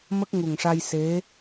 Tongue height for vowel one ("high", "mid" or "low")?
mid